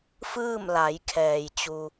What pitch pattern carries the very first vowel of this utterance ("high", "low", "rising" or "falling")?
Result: falling